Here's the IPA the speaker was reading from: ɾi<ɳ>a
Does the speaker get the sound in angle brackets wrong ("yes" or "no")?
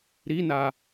yes